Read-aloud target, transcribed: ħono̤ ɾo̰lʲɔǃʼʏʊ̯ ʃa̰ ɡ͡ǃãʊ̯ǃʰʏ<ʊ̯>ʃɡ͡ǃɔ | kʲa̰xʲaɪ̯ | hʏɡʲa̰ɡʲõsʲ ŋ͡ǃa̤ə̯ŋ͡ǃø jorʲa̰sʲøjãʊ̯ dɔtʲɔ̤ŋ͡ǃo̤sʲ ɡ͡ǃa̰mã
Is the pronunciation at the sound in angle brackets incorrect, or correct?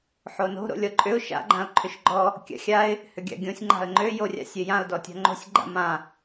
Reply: incorrect